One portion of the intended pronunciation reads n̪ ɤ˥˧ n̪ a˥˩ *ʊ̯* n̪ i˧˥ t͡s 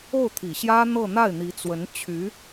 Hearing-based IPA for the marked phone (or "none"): ɪ̯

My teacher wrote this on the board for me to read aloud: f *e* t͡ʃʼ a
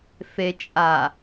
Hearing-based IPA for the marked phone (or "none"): e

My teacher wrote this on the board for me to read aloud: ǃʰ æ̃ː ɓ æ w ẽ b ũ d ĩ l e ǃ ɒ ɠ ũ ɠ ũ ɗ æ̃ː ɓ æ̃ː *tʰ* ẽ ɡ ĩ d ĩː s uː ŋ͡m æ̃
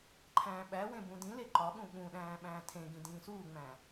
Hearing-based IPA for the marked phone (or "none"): tʰ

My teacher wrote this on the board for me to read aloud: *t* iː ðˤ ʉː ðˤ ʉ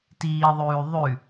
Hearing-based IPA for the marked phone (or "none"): t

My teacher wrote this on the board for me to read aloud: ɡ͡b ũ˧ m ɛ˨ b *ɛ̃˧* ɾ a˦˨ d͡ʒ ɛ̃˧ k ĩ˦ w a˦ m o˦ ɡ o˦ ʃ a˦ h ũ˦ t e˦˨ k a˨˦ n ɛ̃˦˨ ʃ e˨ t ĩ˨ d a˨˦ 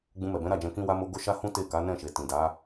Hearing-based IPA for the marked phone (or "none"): ɛ̃˨˦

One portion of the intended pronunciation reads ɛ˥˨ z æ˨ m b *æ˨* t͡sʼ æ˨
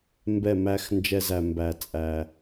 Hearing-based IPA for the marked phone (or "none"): æ˨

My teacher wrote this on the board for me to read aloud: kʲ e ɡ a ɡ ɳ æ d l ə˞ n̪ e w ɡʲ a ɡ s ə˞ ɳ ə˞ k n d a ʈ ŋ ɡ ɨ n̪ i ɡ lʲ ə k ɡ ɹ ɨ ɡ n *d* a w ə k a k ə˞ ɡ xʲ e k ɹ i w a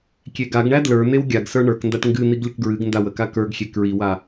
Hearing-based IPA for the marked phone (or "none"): d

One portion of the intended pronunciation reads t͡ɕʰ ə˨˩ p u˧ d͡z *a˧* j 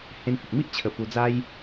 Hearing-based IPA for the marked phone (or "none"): a˦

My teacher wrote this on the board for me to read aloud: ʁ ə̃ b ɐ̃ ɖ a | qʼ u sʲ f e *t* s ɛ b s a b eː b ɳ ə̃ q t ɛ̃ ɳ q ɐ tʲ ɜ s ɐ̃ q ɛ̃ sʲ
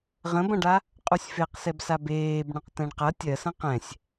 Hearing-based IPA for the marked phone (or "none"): q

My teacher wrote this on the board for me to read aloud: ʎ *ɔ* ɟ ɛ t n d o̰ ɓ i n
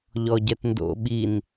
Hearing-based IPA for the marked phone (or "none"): ɔ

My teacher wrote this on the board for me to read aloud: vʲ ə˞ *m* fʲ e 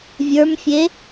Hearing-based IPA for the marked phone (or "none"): m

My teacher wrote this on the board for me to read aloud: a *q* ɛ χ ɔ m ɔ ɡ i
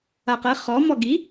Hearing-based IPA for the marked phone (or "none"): q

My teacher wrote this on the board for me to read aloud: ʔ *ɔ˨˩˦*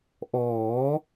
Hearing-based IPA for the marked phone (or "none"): ɔː˨˩˦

